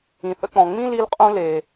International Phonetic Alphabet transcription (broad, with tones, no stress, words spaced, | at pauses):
ĩ˨θə̰˦k͡pɔ̃˨ ŋ͡mĩ˦li˧lqʼũ˧ le˨